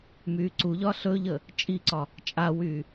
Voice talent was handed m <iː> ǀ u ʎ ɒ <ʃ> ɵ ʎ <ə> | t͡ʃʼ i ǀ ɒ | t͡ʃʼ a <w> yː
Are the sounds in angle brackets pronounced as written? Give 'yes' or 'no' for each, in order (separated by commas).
no, no, yes, yes